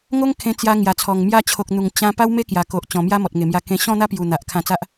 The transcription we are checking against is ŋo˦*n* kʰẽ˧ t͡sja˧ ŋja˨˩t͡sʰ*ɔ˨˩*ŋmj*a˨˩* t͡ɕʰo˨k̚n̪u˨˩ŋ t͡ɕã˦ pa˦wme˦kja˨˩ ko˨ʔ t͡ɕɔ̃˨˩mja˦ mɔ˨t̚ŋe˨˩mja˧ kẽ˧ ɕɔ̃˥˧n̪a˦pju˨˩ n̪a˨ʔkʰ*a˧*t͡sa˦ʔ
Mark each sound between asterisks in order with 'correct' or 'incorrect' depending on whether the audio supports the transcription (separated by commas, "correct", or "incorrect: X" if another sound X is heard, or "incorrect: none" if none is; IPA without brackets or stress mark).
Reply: incorrect: ŋ, correct, incorrect: a˦, incorrect: ã˧